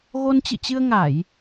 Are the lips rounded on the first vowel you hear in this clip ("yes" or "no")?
yes